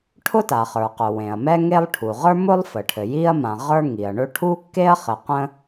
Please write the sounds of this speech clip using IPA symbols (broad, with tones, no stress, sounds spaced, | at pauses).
ʈʰ ʊ˥ t a˩ χ ə˞˩ q ʊ˩ w ẽ˩ ɐ̯ m ɛ˥ ŋ e˥ lˠ ʈʰ u˩ ʁ ə˞˥ m ʊ˥ lˠ f ə˩ ʈʰ ɘ˩ j i˥ ɐ̯ m ã˩ ʁ ə˞˥ ŋ i˩ ɐ̯ ɳ ɵ˥ ʈʰ u˥ kː e˥ ɐ̯ χ ɘ˩ q ə̃˥